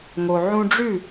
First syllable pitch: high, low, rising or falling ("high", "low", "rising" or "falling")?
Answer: low